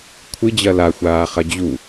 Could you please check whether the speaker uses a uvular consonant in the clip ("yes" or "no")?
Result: yes